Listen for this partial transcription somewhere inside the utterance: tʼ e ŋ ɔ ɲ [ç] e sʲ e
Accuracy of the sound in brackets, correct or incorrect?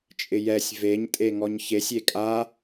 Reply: correct